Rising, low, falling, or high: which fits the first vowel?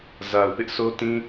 low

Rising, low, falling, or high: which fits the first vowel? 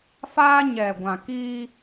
high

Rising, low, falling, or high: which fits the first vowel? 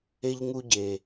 high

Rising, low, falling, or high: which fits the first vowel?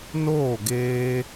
falling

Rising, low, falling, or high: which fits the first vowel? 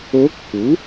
rising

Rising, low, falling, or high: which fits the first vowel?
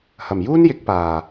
low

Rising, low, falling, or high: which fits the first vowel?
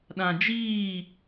low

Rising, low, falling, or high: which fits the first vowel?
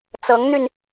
rising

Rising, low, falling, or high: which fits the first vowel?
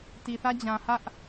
low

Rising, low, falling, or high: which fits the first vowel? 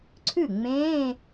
falling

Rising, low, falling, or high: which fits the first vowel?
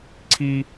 high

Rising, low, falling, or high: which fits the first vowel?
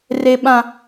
high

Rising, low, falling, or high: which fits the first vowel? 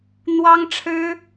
high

